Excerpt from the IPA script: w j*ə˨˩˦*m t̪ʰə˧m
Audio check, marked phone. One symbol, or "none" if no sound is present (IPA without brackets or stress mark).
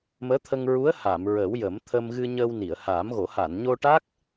ə˨˩˦